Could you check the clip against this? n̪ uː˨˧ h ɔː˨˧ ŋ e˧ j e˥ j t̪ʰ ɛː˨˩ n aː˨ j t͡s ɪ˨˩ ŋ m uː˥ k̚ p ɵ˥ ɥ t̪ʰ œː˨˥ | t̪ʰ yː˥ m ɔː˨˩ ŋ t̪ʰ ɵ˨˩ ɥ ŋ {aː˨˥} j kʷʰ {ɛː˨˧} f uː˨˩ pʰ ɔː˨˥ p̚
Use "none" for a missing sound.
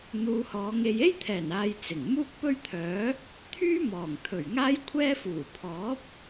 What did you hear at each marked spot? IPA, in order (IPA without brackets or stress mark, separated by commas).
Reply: aː˥, ɛː˥